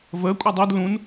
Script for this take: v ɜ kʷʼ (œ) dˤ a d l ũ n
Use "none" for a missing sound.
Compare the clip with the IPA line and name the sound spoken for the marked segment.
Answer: œ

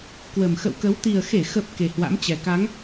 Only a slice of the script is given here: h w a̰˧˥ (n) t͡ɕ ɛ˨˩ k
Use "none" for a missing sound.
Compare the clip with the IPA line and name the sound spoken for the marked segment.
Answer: m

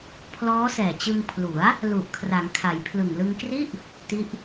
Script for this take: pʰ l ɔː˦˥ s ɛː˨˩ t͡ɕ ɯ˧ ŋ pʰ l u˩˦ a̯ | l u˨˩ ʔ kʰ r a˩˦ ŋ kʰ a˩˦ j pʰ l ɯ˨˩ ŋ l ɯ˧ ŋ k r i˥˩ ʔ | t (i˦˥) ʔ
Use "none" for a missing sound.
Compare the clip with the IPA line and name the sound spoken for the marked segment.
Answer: i˦˥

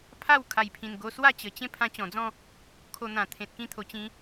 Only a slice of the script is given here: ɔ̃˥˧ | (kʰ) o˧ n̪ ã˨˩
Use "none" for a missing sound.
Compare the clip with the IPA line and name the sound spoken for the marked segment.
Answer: kʰ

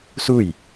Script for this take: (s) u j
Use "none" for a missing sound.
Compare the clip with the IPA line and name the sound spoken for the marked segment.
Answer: s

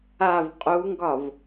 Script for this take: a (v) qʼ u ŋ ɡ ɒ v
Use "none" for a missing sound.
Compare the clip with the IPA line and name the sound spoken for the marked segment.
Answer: v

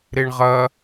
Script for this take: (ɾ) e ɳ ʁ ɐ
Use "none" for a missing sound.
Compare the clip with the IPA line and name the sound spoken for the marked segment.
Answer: ɾ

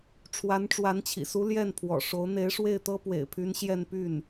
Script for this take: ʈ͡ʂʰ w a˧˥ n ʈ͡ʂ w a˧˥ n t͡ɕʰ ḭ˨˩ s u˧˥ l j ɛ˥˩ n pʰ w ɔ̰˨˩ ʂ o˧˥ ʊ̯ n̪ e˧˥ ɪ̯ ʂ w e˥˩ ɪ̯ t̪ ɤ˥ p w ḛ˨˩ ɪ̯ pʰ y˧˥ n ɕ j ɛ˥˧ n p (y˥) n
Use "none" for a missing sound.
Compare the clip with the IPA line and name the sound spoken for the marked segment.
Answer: y˥˩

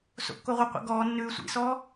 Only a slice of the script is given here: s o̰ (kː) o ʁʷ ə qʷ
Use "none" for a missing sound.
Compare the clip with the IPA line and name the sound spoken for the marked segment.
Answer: kː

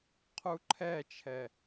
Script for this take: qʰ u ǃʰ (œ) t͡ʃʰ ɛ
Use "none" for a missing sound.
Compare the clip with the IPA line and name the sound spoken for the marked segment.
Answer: ɛ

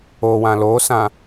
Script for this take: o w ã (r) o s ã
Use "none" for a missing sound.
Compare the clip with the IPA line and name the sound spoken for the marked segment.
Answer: l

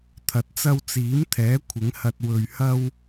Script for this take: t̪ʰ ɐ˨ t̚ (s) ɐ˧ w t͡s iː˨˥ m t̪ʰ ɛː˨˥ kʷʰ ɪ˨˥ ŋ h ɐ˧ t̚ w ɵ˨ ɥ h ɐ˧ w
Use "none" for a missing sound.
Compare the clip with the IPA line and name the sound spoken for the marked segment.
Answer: t͡s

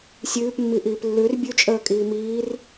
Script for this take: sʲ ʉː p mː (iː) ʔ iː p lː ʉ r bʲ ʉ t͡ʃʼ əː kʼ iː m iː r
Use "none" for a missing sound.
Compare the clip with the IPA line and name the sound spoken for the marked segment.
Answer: i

